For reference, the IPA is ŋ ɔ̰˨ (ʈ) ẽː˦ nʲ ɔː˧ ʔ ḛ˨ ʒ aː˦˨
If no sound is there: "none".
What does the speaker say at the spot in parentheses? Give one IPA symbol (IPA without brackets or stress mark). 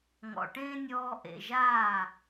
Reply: ʈ